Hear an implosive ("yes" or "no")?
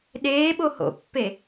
yes